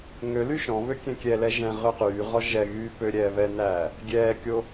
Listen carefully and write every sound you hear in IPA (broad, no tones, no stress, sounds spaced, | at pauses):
ŋ ø l y ʃ ɔ̃ β ø kʲ ɛ̃ kʲ ɛ l ɛ ʒ ɛ̃ ʁ ø q yː ʁ ɔ ʒ ɛ ɣ yː p ø ɾʲ ɛː β ɛ n æː | ɡʲ ɛː kʲ o